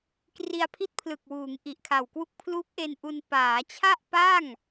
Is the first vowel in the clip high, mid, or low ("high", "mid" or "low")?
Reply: high